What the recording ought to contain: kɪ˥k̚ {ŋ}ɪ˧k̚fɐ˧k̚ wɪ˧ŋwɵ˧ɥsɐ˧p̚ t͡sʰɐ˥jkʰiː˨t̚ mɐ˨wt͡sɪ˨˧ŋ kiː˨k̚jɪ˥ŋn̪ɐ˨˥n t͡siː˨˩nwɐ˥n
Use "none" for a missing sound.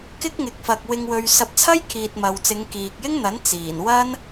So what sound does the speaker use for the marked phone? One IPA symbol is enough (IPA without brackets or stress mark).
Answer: ŋ